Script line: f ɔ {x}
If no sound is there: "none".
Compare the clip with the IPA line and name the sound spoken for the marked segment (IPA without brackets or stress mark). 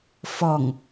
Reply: ŋ